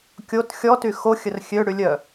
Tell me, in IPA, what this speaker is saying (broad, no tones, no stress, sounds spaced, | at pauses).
kʲ o t xʲ ɔ t y x o xʲ ə r xʲ ø ɽ y lʲ œ